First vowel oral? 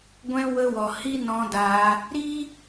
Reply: no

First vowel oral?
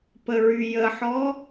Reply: yes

